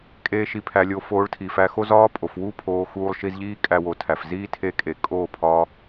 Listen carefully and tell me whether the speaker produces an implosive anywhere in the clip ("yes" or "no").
no